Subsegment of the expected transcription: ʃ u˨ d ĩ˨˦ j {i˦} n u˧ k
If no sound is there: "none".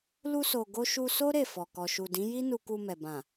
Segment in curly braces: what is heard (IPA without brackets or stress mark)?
i˦